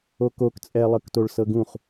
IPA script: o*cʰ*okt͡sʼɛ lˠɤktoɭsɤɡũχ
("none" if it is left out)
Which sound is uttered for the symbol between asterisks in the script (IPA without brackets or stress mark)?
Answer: k